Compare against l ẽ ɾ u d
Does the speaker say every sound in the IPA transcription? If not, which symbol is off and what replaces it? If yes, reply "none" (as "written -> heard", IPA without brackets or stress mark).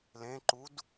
ɾ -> ǃ